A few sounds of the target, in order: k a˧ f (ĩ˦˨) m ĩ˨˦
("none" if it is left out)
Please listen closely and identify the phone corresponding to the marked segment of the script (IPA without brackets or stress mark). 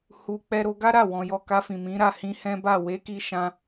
ĩ˨